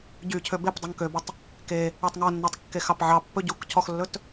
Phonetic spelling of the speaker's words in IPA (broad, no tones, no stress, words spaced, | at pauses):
ɟy cʰøbepdˤɵŋ købɵtˤ | ke | ɛtˤŋɔnːɑtˤ kːexɑpʕɑpːɵ ɟuk cʰɔxlːɵt